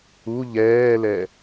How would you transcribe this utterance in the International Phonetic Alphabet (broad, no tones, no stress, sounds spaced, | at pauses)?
u ʎ ɛː l ɛ